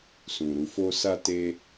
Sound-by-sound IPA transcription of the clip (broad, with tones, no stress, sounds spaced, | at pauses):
s ũ˨ ɾ u˨ f o˧ s a˦ t e˦